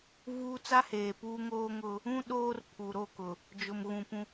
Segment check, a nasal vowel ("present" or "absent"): present